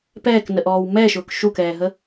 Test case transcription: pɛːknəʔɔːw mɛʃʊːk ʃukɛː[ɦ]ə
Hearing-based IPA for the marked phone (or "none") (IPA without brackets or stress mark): ɦ